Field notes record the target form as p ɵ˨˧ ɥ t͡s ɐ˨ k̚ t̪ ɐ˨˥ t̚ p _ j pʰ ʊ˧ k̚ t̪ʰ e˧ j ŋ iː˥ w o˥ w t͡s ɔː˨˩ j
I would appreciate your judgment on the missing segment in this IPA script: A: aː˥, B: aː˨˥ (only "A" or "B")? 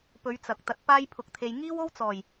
A